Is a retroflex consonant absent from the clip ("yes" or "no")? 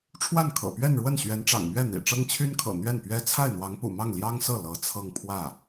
no